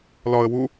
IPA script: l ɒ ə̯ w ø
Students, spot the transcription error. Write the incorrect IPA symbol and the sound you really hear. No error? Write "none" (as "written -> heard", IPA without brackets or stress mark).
ø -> u